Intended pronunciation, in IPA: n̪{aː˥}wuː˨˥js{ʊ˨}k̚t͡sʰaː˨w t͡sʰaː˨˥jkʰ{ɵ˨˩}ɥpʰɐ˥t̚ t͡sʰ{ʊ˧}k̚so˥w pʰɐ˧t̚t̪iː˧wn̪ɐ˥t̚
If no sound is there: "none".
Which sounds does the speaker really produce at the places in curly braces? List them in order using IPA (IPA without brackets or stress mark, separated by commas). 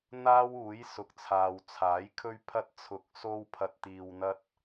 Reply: aː˥, ʊ˨, ɵ˥, ʊ˧